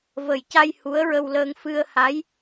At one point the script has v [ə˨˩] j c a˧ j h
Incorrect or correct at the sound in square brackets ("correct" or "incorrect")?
correct